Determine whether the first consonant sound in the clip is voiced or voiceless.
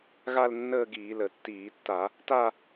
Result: voiced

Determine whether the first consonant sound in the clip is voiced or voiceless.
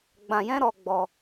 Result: voiced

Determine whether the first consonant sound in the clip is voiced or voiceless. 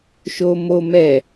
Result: voiceless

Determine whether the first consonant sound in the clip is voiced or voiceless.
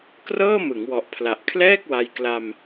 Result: voiceless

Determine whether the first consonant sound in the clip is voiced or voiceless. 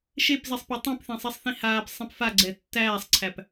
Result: voiceless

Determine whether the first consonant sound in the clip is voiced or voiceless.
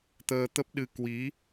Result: voiceless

